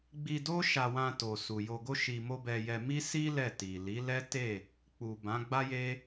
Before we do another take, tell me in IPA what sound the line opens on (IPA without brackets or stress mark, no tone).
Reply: ɡ͡b